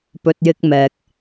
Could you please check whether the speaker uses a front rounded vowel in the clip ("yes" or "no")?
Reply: no